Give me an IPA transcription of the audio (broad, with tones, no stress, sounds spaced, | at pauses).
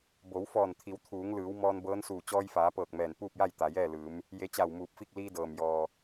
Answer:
b o˩˧ w f ɔː˧˩ n t̪ʰ i˩˧ w t̪ʰ uː˩˧ ŋ l ɯː˩˧ w m ɔː˧ n b ɤː˧˥ n s uː˧˩ t͡ɕ ɔː˧ j f aː˩˧ p ɤː˧˩ k̚ m ɛː˧˩ n p uː˥˨ p̚ j a˥˨ j t̪ a˩ j ɛː˥˨ l ɯː˩˧ m | j e˧˥ t͡ɕ a˧˩ w m uː˧˩ p̚ f i˥˨ k̚ l iː˧ d ɤː˩ m j ɔː˩